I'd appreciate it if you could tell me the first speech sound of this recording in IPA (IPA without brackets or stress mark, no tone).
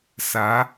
s